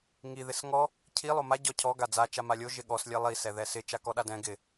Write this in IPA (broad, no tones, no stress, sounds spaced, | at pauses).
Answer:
ŋ i ð ɪ s ŋ ɔ | cʰ i lˠ o m a ɟ ɔ cʰ ɔ ɡ a d͡z a t͡ʃ a m a lʲ o ʒ ɪ ɠ ɔ s lʲ ɛ lˠ i s ɛ ð ɛ s ɪ t͡ʃ a k ɔ ɗ a d ɛ̃ ɡ ɪ